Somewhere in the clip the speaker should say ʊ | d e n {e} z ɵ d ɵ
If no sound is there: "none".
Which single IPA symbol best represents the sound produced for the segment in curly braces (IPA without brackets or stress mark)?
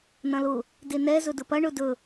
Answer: ɛ